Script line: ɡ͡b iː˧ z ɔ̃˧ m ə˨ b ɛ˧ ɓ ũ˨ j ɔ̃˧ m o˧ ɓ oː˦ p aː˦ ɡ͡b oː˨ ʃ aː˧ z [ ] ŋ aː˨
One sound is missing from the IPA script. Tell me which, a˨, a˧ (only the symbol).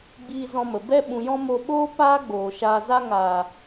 a˧